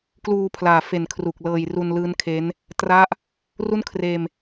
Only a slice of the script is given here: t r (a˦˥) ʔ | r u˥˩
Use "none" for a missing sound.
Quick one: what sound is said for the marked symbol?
a˥˩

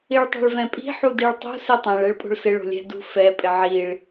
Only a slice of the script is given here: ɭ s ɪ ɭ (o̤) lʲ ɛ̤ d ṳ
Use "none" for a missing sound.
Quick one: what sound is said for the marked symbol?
o̤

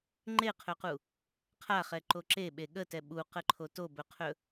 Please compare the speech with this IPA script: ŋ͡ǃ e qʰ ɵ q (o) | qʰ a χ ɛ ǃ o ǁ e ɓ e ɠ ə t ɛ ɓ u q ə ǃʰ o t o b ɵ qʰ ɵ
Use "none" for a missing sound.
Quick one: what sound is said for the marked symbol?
u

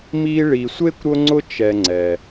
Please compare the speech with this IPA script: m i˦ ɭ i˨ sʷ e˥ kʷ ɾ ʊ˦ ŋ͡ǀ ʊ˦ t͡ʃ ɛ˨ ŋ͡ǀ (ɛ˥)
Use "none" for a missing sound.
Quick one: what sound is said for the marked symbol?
ɛ˩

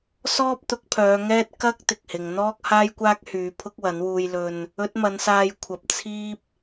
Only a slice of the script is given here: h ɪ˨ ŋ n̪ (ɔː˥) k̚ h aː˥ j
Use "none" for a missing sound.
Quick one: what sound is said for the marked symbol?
ɔː˥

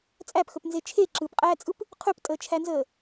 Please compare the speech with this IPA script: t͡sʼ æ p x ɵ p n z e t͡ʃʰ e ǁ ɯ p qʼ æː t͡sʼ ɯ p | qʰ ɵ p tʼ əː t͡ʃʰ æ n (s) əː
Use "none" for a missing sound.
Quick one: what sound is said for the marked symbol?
z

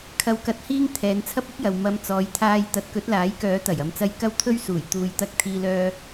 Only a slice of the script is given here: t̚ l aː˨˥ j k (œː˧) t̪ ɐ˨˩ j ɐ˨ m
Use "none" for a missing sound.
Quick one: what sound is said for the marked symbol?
œː˨˥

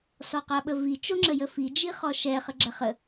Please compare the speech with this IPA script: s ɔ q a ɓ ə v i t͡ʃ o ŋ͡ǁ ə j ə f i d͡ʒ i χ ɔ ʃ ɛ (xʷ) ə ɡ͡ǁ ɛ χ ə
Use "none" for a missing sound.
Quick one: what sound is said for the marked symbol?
χ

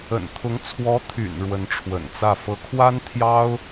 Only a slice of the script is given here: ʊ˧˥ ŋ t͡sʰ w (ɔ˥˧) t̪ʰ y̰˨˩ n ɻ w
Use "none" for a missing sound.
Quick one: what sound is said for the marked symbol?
ɔ˧˥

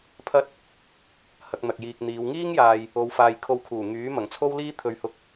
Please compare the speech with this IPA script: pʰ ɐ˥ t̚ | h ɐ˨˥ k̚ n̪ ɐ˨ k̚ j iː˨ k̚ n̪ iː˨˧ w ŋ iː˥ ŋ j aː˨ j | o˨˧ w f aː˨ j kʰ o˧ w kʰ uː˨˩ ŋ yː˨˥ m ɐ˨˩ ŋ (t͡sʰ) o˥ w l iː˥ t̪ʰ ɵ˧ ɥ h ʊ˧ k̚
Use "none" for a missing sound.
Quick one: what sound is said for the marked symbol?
t͡sʰ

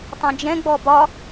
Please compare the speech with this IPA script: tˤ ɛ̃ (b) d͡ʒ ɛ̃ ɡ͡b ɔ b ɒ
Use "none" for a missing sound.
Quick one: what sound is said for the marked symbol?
none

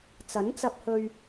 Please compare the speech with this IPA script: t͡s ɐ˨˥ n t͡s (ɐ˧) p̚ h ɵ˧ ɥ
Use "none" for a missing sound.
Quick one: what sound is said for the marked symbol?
ɐ˧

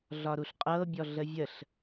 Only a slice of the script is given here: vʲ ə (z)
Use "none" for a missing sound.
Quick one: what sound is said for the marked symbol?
ɬ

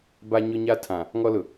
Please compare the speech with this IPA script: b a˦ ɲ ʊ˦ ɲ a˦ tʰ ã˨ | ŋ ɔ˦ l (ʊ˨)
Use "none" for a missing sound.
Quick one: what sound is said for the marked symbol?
ʊ˨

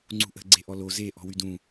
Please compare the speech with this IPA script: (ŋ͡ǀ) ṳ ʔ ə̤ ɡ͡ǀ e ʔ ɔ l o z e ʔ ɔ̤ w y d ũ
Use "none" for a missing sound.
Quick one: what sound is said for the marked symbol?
ŋ͡ǀ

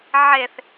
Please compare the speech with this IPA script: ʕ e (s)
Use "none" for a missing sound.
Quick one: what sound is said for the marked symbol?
θ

